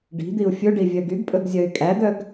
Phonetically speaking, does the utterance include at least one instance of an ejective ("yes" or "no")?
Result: yes